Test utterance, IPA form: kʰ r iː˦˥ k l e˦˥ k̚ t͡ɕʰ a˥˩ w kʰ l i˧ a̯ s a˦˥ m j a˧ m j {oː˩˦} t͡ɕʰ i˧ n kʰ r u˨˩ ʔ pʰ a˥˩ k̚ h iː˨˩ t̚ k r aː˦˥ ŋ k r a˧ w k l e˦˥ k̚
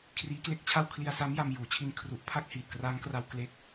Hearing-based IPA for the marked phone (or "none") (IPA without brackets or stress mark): uː˩˦